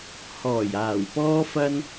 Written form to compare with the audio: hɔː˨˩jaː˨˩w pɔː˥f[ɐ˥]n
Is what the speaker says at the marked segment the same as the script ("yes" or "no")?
yes